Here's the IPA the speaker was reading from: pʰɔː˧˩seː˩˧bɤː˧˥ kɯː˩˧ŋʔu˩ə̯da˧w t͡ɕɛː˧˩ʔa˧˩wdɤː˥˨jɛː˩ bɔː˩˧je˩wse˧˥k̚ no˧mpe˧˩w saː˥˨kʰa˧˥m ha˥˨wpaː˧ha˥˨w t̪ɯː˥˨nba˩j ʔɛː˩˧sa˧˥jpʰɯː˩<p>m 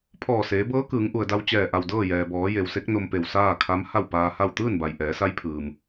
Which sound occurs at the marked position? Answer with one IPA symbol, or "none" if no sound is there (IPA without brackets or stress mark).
none